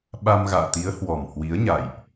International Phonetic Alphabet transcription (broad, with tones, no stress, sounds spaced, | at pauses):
ɓ a˧ m ɣ a̰ː˧˨ t̪ i˨˦ ə̯ h w ɔ˨˩ m h w i˨˦ ə̯ ɲ a̰˧˨ j ʔ